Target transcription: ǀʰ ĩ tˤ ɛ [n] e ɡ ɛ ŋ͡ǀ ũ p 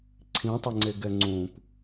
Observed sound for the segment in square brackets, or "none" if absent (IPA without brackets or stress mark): ŋ͡ǀ